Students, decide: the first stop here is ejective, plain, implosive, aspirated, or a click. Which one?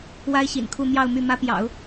aspirated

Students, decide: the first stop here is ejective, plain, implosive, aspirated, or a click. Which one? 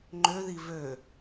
click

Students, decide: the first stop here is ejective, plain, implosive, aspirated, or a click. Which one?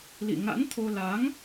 aspirated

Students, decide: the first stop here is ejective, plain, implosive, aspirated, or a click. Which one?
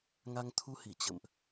aspirated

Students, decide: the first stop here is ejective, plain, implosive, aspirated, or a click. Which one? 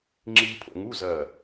click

